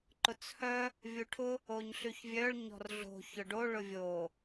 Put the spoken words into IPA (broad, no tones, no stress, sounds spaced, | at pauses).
ǃ ʊ t͡s h œ | vʲ u ʈʰ ʊ | o ɲ ɬ y ç vʲ œ ɭ ɲ ɔ̤ r ɮ o̤ ç ʊ ɖ o ɭ ʊ vʲ o